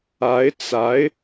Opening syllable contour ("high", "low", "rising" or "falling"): rising